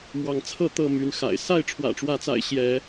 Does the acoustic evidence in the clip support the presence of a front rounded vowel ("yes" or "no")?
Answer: yes